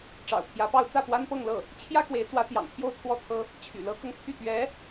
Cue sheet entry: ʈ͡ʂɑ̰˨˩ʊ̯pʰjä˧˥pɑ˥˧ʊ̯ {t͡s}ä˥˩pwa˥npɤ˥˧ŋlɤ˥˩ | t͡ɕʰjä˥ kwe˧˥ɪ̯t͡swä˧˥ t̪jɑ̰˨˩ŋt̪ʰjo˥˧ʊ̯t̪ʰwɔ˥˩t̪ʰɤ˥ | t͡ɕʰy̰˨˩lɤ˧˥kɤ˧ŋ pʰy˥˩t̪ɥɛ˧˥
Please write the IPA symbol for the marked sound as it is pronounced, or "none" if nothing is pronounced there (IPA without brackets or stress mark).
t͡s